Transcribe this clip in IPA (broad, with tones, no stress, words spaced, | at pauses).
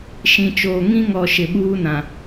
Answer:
ʃĩ˨t͡ʃoː˨ ŋĩ˦ŋɔ˨ ʃɪ˨ɓuː˦nã˨